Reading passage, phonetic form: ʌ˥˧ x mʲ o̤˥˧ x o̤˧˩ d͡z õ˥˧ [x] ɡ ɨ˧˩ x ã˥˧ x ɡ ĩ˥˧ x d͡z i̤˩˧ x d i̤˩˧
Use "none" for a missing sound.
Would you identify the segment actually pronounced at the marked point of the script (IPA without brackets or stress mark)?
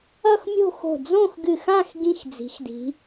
x